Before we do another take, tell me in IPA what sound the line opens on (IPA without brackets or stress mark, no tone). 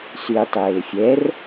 s